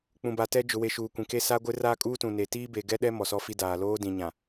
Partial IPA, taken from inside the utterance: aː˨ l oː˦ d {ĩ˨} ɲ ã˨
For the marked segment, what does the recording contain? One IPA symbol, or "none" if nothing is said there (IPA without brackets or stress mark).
ĩ˨